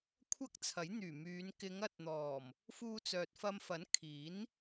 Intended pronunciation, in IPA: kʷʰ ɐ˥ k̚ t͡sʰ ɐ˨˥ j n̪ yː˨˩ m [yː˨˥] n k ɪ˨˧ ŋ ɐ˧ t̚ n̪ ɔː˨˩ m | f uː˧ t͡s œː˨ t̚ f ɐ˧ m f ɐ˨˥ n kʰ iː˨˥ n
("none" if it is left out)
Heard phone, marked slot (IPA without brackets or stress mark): yː˨˧